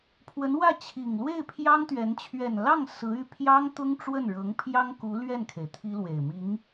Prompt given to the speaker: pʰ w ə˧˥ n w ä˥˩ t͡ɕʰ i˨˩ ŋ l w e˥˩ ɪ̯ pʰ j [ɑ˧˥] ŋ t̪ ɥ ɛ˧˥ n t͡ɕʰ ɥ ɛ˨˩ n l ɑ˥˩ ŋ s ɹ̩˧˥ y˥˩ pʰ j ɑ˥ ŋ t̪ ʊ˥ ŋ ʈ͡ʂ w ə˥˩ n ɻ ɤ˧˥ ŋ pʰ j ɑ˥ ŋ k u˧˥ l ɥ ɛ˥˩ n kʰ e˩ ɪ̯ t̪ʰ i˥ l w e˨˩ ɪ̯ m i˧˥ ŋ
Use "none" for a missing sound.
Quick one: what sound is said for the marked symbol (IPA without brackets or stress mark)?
ɑ˥